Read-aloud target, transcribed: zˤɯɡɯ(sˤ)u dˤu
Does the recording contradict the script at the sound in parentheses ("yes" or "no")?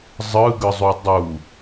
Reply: yes